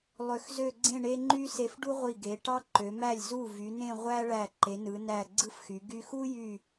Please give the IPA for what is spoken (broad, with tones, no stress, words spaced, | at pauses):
lˠø˧˩xzø˥˧ɡ͡ǀẽ˥˧ ɳe˧ ŋ͡ǃy˥se˧fɖu˥ ʁʷi˧˩ɡe˩˧ʈɑ˥ǃø˩˧ mæ˧˩lʲzu˧˩ vy˩˧nẽ˥˧ʁʷæ˥ ɭæ˧˩ǃe˩˧nɯ˩˧næ˧˩ ɡ͡ǀɯ˥fxy˩˧ ɡy˧xu˥jy˧˩